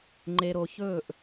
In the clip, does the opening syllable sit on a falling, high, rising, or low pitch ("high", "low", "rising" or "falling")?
low